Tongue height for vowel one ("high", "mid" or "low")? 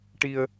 high